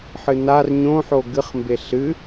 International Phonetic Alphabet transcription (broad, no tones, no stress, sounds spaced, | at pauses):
ħ ɨ n a r ɲ õ ħ o ɡ ɨ χ m b e ɬ ɨ